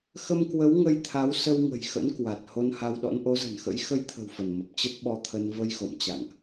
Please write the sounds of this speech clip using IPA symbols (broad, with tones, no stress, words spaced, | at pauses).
xə˧mkwə˨˦w ŋə˧jt̪ʰa˨˦w sə˧wŋə̤˨˩jxə̰˧˥nkwa˨˩t̚ ho˧nha˧wɗɔ̰˧˥n ʔo˨˦zə̤˨˩nxə̰˧˥j xə˧jt̪ʰə̤˨˩w fə˧˩nmə˨˩p̚ t͡ɕə˦˥t̚ɓɔ˧t̪ʰə˧n və˧jxo̰˧˨m t͡ɕa̰˧˨ŋʔ